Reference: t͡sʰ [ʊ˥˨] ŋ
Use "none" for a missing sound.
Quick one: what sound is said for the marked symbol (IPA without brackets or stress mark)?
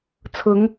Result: ʊ˨˦